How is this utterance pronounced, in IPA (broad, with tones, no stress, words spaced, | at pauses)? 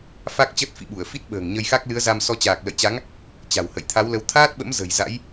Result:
fa˦˥k̚t͡ɕə˦˥t̚fḭ˧˨ɓu˧˩ə̯ fi˦˥t̚ɓə̤ː˨˩ŋɲə˧jxa˦˥k̚ lɨ˨˦ə̯za˧msɔ˧ t͡ɕaː˨˩k̚lə̰˧˨jt͡ɕa˨˦ŋ | t͡ɕa̤˨˩whə̰˧˨j t̪ʰa˨˦wlə˨˦w t̪ʰaː˦˥t̚ɓə̰˧˥mzə̤˨˩j za̰˧˥j